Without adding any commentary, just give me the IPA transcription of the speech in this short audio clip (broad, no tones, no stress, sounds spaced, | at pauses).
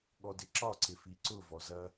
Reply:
ɠ ɔ d ɪ ǁ ɒ ǀ ɪ f i ǀ ʊ v ɔ z ɐ